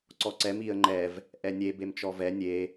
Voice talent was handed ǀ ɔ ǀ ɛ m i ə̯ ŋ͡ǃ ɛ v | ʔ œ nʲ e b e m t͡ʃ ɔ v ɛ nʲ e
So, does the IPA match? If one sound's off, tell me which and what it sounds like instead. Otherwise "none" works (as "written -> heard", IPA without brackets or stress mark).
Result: œ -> ɛ